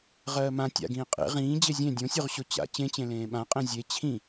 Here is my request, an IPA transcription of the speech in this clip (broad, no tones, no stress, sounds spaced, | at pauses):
ʁ ɜː m ã tʲ a̰ ɡ ĩː qʼ ḛ ʁ ĩː d͡ʑ e zʲ ẽ dʲ õ sʲ o ʁ ɕ o t͡ɕ a̰ t͡ɕ ẽ t͡ɕ ẽ l ẽː ɓ ã qʼ ẽ zʲ e t͡ɕʰ ĩ